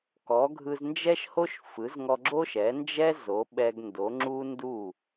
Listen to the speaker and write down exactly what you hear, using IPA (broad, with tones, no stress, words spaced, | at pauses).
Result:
kɔ˩˥ɡʱɯ˧znd͡ʒɛ˥ʃho˥ʃ fɯ˩˥zŋɔ˧ ɡ͡ǁo˥ʃɛ˩˥nd͡ʒɛ˥ zo˩˥ɓɛ˧ɡndo˩˥ ŋ͡ǁu˥ndu˥˩